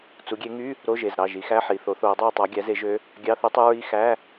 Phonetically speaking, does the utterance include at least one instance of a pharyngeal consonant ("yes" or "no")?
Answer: yes